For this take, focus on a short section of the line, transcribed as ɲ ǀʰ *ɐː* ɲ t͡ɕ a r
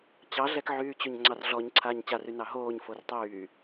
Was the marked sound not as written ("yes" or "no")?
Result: yes